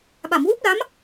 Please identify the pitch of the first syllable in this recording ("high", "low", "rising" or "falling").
low